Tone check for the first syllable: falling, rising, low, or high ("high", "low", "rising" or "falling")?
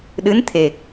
rising